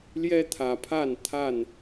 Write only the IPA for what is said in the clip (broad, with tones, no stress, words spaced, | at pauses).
ljɛ˦t̪ʰä˨˩pʰa˥˨n t̪ʰa˥˨n